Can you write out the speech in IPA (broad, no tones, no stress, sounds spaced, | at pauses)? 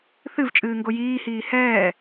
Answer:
θ ɨ v t͡ʃʼ ɨː ŋ ɡ o j iː h iː h ɛː